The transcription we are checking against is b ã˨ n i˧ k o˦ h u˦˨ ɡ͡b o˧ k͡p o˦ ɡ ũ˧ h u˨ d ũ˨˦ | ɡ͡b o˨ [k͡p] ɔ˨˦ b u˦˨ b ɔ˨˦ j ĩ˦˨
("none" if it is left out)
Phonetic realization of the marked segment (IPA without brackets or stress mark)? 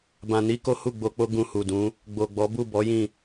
ɡ͡b